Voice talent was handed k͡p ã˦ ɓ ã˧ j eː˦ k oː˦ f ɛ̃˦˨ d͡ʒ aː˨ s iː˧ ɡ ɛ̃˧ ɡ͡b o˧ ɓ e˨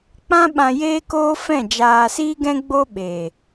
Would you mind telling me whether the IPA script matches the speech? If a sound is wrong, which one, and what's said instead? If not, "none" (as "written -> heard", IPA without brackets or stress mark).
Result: none